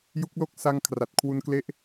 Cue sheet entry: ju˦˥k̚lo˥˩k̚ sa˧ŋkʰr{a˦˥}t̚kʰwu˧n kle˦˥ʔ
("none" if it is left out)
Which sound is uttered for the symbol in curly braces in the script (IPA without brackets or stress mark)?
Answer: a˨˩